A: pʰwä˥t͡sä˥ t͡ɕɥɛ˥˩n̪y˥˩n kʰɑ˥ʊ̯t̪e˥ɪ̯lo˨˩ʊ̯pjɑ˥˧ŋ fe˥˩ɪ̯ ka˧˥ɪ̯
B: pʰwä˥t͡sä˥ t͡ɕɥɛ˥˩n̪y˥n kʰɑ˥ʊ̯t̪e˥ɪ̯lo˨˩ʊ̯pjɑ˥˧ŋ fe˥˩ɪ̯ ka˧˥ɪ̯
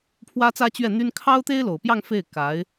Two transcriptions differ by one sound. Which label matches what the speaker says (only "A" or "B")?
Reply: B